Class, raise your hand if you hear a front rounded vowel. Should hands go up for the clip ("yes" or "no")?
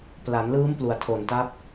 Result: no